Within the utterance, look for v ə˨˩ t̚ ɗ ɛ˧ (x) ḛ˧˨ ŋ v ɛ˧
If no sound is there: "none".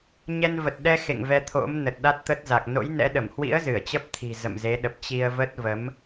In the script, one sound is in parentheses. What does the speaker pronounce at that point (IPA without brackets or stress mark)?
x